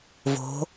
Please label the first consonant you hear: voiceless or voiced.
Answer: voiced